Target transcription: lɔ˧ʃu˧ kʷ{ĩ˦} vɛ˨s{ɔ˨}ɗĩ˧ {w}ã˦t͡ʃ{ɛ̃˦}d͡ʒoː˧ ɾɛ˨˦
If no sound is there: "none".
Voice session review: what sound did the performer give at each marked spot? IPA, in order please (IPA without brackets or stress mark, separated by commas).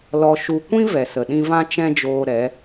ĩ˦, ə˨, v, ɛ̃˦